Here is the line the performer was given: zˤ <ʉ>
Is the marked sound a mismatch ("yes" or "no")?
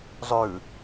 no